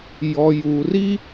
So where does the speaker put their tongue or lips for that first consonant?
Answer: palate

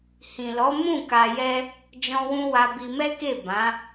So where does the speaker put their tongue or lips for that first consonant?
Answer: throat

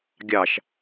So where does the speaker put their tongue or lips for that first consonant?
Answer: velum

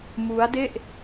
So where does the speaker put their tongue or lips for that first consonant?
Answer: lips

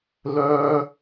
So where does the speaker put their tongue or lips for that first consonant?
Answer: tongue tip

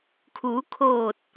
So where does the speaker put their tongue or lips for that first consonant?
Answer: velum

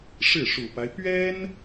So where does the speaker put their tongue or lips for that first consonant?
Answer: retroflex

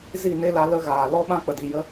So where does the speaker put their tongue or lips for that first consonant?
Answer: tongue tip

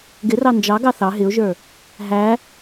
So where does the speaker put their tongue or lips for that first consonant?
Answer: velum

